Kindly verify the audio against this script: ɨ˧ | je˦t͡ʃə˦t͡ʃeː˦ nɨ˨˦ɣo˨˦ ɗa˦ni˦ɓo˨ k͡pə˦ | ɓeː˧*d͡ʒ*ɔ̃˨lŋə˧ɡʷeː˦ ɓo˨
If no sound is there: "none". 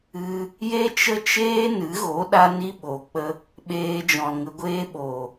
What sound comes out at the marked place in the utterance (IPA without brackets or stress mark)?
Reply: d͡ʒ